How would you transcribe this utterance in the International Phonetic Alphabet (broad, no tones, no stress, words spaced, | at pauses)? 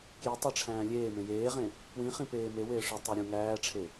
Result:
kjitˤeʈ͡ʂʰæ̃ː lʲeːmẽ jeːʁẽ | pwĩχĩpeː me weːʂe tˤeɾʲũ ŋæːʈ͡ʂʰe